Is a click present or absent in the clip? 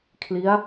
absent